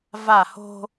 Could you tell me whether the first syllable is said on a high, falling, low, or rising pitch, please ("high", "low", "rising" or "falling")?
falling